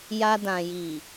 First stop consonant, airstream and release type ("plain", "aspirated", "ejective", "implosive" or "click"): plain